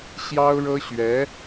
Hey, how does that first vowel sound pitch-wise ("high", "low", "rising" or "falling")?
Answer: high